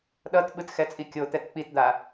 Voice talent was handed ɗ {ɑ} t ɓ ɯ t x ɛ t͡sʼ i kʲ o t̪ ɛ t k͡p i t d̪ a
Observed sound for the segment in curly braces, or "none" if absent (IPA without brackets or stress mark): ʌ